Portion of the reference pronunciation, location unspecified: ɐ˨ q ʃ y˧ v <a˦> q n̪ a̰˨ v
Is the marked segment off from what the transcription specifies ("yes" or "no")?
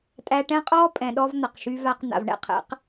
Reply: yes